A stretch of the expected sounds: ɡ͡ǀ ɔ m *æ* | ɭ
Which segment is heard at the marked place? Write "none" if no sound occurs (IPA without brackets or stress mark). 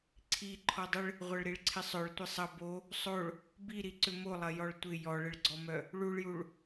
œ